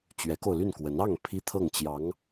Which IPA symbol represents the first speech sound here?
t͡ɕ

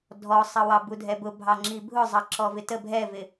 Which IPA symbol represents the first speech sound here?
dʱ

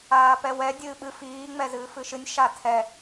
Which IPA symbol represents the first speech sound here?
aː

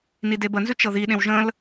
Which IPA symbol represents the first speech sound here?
n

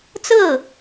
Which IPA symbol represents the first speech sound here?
t͡s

